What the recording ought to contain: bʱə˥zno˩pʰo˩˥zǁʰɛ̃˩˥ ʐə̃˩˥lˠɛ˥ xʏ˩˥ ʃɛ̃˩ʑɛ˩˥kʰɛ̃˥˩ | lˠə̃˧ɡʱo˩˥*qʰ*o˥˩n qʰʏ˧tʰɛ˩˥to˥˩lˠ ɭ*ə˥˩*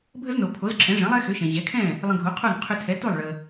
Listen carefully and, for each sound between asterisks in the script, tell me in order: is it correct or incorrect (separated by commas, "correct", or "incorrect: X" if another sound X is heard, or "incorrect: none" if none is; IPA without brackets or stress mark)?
correct, incorrect: ə˩